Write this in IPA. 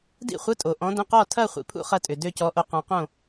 d ḭ˥˧ χʷ ə˧˥˧ tʼ o˨ ʔ ɔ̃˧˥ d ə̃˧˥˧ q ɔ˥˧ tʰ ɐ˥˧ χʷ ḭ˨ pʰ ṵ˥˧ χ ɐ˥˧ tʼ ʏ˨ d ø˥˧ c ɔ˧˥ ʔ o˧˥ q ɔ̃˧˥ q õ˥˧

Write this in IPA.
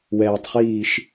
w ɛː tˤ χ iː ʃ

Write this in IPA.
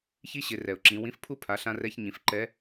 ç i˥ ɕ ɪ˩˧ r ɛ˩ ʊ̯ ǁ ĩ˩˧ w ĩ˧˥ f pʰ u˥ pʰ a˩˧ ɬ ã˧ r ɛ˧ ç ɲ ĩ˩˧ f ǃ ɛ˧˥

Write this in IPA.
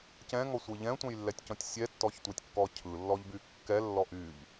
c ɛ̃ ŋ ɔ sʷ ɯ ʎ ɛ̃ tʷ ɛ̃ j lː ɛ tʲ c ɔ̃ tʲ sʲ ɛ tː ɔ ç tʷ ɛ tʲ kː ɔ cʰ ɯ lː ɔ ʎ b y kː ɛ lː ɔ ʔ y ʎ

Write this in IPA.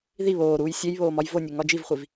ð i β oː ɾ uː j sʲ e j β oː m ɒ j v o nʲ e ŋ ɒ d͡ʒ i v χʷ i v

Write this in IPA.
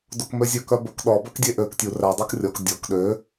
d o k m ø zʲ ɵ k œ b ɵ k ɗ ɔ b œ k dʲ e ʔ ø k tʲ u r æ dˤ o k rʲ ɔ k dʲ ɔ k ɗ ø

